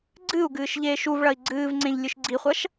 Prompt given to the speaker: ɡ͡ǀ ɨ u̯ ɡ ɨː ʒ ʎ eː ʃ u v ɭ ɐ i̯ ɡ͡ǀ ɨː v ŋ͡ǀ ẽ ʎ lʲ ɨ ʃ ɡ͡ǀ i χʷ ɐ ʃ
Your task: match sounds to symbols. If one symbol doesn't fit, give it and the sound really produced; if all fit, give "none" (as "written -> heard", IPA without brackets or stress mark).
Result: ʒ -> ʃ